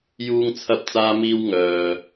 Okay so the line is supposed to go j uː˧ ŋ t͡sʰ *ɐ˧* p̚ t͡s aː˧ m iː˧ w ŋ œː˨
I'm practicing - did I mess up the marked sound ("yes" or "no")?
no